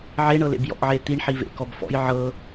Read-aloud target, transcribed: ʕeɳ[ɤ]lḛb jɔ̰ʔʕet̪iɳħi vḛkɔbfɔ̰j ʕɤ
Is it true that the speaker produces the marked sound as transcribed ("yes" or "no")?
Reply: yes